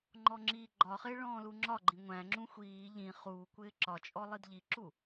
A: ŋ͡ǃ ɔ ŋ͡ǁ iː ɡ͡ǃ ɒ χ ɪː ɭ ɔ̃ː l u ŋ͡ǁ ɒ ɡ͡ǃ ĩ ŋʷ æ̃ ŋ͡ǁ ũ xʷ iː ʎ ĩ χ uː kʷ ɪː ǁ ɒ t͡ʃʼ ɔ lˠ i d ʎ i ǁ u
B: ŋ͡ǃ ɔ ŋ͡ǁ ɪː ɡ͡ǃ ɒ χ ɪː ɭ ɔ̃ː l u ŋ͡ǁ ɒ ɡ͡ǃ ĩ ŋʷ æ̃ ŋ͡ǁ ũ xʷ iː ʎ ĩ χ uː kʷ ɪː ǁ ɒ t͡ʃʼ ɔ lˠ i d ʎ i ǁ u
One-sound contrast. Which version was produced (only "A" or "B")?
A